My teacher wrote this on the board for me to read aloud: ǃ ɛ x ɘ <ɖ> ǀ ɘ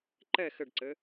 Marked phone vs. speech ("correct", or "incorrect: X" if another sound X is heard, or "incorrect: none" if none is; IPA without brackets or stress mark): correct